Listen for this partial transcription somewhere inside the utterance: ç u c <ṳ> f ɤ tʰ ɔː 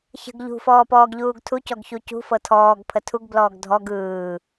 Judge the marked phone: correct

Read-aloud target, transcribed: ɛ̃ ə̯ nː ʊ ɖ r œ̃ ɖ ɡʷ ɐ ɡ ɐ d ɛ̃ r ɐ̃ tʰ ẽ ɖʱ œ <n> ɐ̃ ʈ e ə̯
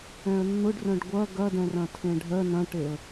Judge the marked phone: correct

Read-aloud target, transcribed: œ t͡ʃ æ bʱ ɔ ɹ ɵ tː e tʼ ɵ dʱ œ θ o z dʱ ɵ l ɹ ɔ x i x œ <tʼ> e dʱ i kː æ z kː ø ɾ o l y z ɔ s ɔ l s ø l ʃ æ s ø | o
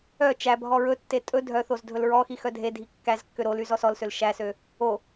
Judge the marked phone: incorrect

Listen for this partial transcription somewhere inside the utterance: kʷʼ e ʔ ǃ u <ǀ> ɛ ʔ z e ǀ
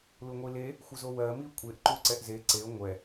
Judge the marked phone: correct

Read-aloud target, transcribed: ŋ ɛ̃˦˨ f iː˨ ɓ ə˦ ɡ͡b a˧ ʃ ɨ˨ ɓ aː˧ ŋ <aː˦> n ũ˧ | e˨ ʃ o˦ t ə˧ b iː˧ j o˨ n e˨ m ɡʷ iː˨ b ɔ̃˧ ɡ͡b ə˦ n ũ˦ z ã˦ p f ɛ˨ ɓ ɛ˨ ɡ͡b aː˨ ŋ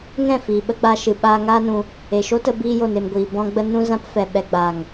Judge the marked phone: correct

